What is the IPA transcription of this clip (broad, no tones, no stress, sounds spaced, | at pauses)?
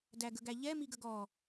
d æ ɡ ə ɡ æ ʎ ɛ m i ɡ ə ɡ ɔ